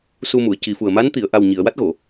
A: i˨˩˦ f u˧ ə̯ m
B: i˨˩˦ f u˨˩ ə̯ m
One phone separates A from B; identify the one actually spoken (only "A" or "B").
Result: B